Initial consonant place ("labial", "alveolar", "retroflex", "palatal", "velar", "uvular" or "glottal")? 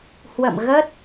glottal